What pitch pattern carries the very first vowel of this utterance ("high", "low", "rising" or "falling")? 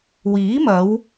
rising